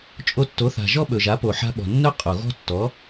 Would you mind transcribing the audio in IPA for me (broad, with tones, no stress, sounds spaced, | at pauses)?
t͡ʃʼ o˧ tː o˩˥ θ a̤˩ ʒ ɔ˥ ɓ ɵ˩ ʒ a˩˥ p o˩ ħ a̤˧ ɓ ɔ̤˩ nː œ˥ qʼ o˩ ɣ ɔ̤˥ tː ɔ˩˥